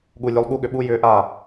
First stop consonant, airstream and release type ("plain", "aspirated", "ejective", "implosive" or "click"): implosive